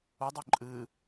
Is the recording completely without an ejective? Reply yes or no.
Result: no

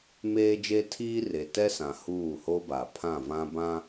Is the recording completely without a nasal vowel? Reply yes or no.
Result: no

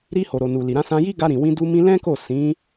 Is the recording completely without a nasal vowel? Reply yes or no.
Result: no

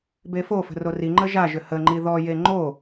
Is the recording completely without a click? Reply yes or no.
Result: no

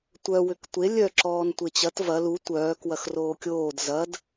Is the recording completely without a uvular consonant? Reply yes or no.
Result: yes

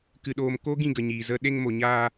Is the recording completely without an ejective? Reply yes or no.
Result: yes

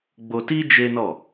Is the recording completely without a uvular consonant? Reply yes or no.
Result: yes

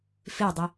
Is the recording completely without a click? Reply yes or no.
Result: yes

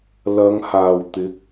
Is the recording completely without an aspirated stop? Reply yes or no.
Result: yes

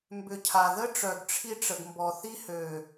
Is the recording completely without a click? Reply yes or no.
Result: yes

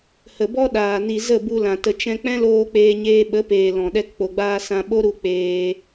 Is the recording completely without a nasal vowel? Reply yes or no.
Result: no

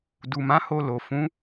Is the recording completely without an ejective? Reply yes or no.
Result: yes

